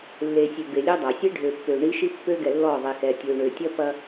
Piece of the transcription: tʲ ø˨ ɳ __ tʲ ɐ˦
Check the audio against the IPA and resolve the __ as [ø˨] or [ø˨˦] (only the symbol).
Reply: ø˨